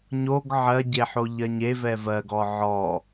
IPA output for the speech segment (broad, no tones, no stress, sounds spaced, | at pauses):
ɲ o ɡ ʕ ɜ ɟ e ħ o ʎ ɜ ɲ e v ɛ v ɜ ɡ ɔ ʕ ɔ